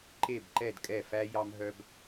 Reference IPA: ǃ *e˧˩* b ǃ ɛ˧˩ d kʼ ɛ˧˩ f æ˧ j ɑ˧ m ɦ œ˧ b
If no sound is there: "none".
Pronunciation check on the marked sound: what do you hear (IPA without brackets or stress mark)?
e˧˩